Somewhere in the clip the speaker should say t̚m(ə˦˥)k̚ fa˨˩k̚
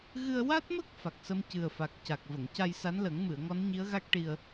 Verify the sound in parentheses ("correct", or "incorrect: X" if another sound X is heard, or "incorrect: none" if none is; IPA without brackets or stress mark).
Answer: correct